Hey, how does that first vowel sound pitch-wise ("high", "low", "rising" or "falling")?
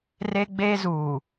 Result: high